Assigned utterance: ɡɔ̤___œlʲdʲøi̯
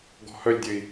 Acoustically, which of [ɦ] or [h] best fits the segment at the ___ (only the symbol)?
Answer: h